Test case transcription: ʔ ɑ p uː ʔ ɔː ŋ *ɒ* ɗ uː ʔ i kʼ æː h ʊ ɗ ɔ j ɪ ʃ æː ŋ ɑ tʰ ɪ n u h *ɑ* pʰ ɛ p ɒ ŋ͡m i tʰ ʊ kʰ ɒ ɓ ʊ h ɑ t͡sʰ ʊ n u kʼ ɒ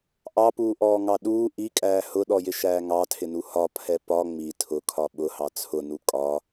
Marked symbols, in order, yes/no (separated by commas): no, no